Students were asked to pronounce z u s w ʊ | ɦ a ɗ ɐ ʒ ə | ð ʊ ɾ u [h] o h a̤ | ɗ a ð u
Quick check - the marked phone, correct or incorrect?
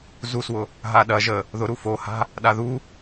incorrect